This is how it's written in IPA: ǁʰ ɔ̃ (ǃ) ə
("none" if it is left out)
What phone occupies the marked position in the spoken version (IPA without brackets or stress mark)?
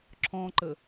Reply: ǃ